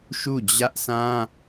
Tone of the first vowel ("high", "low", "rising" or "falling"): falling